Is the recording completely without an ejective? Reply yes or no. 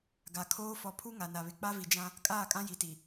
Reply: no